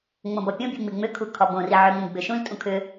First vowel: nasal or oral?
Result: nasal